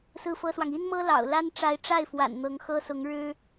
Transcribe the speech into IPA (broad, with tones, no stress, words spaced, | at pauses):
sɹ̩˥˩fɤ˥swɑ˨ŋ i˥nmɤ˥ lɑ̰˨˩ʊ̯la˥n ʈ͡ʂa˧˥ɪ̯ʈ͡ʂa˥˩ɪ̯fwa̰˨˩n n̪ɤ˧˥ŋxɤ˥ sʊ˧˥ŋɻɻ̩˥